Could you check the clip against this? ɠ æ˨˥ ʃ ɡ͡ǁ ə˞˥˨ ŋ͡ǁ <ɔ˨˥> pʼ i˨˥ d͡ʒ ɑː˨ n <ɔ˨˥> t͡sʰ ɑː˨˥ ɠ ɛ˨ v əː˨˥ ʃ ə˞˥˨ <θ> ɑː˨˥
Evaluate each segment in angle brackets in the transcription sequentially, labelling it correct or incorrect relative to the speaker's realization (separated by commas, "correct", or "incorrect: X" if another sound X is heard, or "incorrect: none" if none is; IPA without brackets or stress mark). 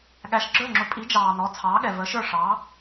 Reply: incorrect: ʊ˨˥, correct, incorrect: ʂ